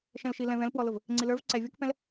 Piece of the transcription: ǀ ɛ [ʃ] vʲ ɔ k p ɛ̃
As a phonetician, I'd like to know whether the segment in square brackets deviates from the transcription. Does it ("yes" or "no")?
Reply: yes